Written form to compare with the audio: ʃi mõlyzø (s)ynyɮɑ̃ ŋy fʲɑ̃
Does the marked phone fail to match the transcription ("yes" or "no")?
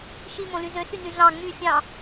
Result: no